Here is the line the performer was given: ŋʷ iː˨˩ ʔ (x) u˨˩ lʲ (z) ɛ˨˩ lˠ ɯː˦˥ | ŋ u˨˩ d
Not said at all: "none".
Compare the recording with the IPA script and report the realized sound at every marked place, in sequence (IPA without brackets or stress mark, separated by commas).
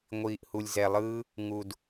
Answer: h, z